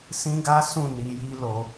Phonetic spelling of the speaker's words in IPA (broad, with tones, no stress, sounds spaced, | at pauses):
s ĩ˦ ɡ a˦ s ũ˦˨ n i˧ j i˦ l o˧